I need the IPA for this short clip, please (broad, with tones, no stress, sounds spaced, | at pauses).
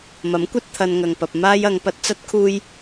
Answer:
m ɐ˨˥ m kʷ ɐ˥ t̚ t̪ʰ ɐ˧ n ŋ ɐ˨ ŋ p ɐ˨ p̚ m aː˥ j ɐ˨˧ ŋ p ɐ˧ t̚ t͡s ɐ˥ t̚ kʰ uː˥ j